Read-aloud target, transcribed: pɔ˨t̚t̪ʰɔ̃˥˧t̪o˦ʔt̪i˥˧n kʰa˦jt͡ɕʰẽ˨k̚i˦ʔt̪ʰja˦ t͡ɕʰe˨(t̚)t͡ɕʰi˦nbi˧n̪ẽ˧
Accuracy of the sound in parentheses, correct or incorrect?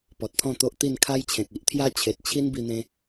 correct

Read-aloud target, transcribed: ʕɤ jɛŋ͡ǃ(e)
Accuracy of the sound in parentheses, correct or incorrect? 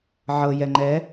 incorrect: ɛ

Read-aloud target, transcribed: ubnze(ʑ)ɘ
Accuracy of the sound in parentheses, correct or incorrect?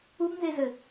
incorrect: z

